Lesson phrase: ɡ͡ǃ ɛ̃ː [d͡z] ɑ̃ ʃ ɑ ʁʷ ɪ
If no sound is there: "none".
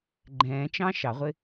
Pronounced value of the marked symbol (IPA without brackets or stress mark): t͡ʃ